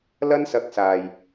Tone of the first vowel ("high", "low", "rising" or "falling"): high